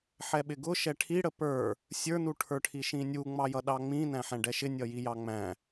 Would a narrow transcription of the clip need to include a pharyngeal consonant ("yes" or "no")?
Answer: yes